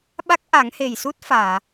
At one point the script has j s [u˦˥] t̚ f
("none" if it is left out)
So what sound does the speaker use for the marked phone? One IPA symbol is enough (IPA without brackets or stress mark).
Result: u˦˥